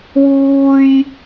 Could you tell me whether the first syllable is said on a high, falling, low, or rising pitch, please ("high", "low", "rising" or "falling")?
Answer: high